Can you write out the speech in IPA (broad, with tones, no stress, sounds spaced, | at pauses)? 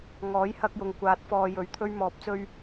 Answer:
ŋ ɔː˨˥ j h ɐ˧ k̚ j ʊ˨˩ ŋ kʷ aː˨˥ t̚ f ɔː˨ j ɵ˨˥ ɥ t̪ʰ ɵ˥ ɥ m ɔː˨ p̚ t͡s ɵ˥ ɥ